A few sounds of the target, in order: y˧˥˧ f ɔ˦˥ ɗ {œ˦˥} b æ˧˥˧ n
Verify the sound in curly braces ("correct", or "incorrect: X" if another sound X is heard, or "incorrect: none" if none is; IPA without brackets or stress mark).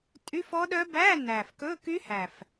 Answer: correct